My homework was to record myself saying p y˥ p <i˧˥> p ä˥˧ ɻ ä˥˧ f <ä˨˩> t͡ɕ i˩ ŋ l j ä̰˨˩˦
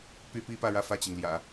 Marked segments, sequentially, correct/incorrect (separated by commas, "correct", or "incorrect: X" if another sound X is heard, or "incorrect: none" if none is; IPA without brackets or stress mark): incorrect: i˥, incorrect: ä˥˩